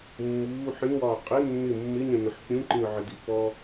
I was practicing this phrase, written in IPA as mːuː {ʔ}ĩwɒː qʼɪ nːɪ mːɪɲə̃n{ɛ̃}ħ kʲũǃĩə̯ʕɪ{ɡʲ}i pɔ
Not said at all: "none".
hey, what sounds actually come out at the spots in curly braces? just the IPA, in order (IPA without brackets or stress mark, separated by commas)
ħ, ə̃, d